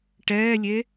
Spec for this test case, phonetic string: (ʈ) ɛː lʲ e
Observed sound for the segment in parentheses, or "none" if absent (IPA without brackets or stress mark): ʈ